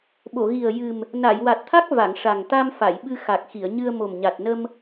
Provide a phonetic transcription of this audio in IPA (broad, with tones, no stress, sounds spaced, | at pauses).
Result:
ɓ o˨˩˨ ɣ i˨˩ ə̯ j ɨ˨˩ m | n a˨˩˨ j w a˨˩ t̚ t̪ʰ a˦˥ k̚ v a˨˩˨ ŋ ʂ a˨˩ ŋ t̪ a˧ m f a˨˩˨ j ɓ ɨ˧ x a˨˩ k̚ x i˨˩˨ ə̯ ɲ ɨ˧ ə̯ m o˨˩ m ɲ a˨˩ t̚ n ə˧ m